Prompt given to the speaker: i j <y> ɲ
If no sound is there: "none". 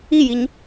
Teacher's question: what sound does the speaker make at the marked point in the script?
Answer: i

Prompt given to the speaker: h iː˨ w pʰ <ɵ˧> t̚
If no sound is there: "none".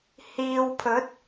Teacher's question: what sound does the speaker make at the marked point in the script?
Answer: ɵ˨˥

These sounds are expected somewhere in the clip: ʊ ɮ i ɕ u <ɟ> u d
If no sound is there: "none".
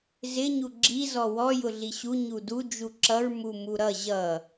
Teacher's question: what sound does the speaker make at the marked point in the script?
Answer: ɲ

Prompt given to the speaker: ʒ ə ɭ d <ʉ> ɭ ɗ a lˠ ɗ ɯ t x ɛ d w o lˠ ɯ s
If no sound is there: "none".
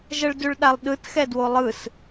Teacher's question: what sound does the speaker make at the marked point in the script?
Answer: ʉ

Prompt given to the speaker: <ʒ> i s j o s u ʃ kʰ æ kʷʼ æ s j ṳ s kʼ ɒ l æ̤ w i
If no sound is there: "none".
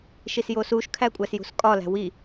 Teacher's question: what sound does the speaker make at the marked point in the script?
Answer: ʃ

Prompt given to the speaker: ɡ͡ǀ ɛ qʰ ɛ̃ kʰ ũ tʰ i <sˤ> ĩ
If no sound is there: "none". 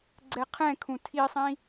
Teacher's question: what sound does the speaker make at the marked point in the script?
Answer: sˤ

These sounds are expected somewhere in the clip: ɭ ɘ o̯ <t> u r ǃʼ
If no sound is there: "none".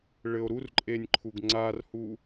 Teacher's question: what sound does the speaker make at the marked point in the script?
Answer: ɾ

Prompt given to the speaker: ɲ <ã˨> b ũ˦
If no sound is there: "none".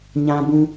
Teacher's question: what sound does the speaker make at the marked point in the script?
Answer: ã˦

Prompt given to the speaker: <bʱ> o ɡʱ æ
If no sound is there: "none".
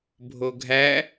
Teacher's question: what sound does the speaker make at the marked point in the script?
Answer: bʱ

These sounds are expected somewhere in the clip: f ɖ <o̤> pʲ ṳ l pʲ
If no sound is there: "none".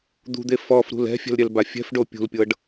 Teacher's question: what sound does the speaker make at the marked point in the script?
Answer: o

